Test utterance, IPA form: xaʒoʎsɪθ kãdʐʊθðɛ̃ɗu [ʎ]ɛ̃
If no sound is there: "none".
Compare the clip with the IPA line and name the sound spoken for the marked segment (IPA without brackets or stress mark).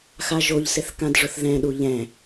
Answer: ʎ